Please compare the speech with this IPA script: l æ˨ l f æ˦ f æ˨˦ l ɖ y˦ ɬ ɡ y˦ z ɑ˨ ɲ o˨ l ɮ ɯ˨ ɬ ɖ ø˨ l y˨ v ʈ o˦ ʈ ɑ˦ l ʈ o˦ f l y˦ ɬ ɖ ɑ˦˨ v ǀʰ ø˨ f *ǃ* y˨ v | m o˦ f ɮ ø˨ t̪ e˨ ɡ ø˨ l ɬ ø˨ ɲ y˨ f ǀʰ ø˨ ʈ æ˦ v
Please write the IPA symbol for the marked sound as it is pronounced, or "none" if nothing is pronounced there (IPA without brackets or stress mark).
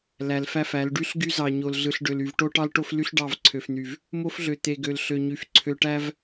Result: n̪